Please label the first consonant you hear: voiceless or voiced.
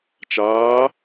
voiceless